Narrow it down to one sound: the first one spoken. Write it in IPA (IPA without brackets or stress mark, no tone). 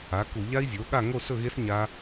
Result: a